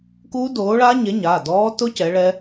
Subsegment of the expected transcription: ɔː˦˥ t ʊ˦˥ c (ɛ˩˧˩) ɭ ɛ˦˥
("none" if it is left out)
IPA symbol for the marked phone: ɛ˨˥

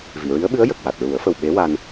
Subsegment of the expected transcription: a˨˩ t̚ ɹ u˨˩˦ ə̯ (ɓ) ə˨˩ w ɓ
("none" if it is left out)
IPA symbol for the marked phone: f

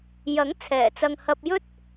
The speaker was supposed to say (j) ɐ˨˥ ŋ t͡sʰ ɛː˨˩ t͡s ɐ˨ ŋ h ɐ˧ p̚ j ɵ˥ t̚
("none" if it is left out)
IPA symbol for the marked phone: j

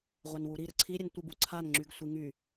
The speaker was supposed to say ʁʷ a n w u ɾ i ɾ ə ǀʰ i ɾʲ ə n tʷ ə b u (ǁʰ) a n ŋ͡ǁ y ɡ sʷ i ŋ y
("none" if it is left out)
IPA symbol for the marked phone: ǀʰ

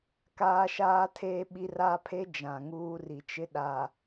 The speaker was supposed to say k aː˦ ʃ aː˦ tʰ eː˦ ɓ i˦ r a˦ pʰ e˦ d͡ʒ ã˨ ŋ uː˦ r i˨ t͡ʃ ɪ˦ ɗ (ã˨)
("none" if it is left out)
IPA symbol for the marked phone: a˨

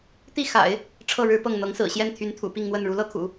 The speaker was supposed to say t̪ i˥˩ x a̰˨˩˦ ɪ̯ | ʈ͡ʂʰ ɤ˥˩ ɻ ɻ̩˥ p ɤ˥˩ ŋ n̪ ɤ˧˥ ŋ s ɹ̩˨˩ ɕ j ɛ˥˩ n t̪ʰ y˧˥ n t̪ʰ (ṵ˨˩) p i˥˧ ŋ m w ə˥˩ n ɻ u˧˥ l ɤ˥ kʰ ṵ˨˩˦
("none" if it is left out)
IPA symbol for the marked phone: ṵ˨˩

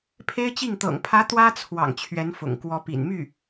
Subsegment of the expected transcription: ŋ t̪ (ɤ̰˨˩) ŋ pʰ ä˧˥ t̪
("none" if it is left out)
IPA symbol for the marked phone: ɤ̰˨˩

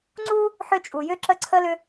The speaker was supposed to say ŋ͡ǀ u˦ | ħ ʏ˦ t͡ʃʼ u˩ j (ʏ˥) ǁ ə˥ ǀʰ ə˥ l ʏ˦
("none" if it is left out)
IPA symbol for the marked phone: ʏ˥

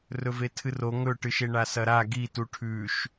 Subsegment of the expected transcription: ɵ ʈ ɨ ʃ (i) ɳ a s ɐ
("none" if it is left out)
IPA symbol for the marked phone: e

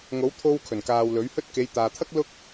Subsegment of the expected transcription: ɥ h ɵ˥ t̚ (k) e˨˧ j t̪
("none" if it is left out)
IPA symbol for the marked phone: k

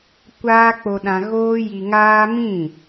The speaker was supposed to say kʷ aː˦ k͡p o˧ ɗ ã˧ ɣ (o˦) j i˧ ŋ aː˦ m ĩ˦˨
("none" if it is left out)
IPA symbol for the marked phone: oː˦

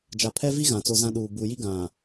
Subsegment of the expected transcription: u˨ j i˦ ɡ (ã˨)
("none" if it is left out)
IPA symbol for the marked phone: ã˨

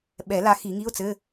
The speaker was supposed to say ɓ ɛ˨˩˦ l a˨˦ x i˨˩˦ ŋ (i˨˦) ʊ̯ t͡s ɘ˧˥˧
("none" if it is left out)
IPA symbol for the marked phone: i˧˥˧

